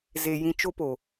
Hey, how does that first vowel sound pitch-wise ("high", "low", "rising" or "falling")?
low